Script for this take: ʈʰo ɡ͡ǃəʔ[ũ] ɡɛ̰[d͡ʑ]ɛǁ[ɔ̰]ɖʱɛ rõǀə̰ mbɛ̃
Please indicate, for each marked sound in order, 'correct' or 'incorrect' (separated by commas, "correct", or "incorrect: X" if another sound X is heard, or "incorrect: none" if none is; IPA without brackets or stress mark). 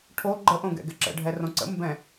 incorrect: õ, incorrect: ɡ, incorrect: ə̰